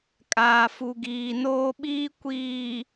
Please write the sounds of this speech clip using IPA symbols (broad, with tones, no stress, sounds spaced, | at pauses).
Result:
kʼ aː˨ f u˨ ɡ iː˨ n oː˦ ɓ iː˦ kʷ iː˨